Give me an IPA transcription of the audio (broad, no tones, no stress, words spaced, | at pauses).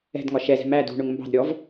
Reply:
ɛ̤dŋɒ ʃɛzɛ̤ mæ dṳɳʊŋ mbɑ̤dɾʲɔv